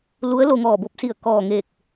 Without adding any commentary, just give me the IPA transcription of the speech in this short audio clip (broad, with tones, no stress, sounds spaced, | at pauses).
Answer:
l u˧˥ ə̯ l o˧ ŋ ɔː˧˩ b o˧˥ p̚ s i˧˩ ə̯ k ɔː˧˩ ŋ eː˧˩ k̚